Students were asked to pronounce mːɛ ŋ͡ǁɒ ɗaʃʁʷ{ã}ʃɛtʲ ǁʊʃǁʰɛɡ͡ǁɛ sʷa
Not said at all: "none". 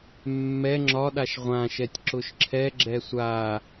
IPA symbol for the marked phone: ã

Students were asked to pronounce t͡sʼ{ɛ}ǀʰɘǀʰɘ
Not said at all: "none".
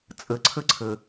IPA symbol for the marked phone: ɘ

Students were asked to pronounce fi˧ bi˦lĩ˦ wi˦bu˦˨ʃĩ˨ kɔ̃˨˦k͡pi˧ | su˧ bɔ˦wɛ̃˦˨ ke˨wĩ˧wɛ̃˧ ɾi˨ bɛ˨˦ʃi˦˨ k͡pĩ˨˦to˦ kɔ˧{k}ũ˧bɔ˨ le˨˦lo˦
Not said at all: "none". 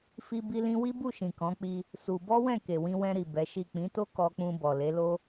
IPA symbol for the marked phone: k͡p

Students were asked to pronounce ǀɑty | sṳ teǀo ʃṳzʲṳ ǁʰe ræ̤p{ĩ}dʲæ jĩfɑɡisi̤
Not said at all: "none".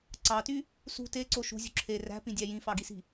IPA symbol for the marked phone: ĩ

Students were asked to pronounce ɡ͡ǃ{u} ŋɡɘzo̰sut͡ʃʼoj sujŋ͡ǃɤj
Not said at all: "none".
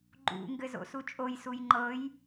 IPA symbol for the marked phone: ṵ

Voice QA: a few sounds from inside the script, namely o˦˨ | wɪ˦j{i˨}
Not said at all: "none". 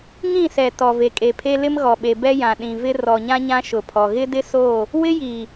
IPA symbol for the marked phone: i˨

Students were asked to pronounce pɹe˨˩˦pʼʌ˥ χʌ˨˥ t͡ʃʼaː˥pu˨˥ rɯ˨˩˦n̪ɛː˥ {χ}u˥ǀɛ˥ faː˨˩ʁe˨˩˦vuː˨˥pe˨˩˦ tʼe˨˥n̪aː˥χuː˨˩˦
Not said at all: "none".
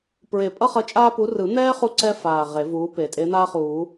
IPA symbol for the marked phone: χ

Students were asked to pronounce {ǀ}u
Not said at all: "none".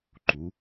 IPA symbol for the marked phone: ǃ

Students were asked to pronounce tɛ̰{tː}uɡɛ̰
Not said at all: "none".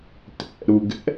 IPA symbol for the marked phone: ɾ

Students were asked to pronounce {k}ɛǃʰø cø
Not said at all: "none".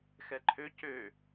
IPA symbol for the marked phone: x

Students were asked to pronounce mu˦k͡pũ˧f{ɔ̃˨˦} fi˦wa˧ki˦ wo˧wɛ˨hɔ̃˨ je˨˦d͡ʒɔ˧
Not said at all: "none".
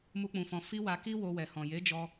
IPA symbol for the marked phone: ɔ̃˧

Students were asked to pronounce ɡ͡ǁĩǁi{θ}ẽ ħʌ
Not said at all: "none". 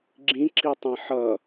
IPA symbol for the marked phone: tˤ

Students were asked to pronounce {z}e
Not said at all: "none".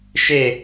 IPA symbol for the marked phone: ʃ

